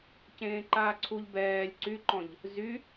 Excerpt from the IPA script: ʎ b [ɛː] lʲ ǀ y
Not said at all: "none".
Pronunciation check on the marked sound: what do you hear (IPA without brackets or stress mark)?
ɛː